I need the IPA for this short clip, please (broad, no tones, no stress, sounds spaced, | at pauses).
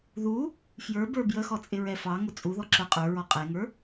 ð u | f j ə˞ b ə˞ b j ə x ɔ t͡sʼ ɪ ɹ ɛ f ɑ ŋ ʊ t͡sʼ u ð ɔ ǁ ə˞ qʼ ə˞ ɹ ɔ qʼ ɛ ŋ ə˞